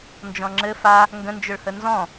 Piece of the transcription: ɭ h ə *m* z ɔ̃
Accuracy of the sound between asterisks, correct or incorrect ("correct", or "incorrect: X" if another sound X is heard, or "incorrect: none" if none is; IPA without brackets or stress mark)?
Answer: incorrect: n